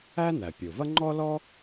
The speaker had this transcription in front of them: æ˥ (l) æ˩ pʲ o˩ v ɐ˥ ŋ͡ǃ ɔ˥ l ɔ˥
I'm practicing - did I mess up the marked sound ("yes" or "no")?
yes